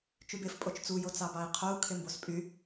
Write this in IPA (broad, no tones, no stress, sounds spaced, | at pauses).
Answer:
t͡ʃ y b e f pʼ o t͡ʃ t͡s u j o t͡s ɑ b ɑ i̯ qʰ o u̯ kʰ e m b o s pʼ y